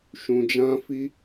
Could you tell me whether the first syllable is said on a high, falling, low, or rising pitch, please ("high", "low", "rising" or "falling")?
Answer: low